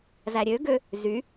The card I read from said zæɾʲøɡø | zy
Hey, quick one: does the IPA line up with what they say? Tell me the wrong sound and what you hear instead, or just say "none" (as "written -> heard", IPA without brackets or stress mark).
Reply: none